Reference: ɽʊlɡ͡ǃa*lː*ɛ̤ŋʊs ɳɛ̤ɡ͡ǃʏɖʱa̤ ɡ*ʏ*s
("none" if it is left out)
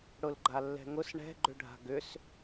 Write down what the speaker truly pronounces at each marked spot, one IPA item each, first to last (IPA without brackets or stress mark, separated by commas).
lː, ʏ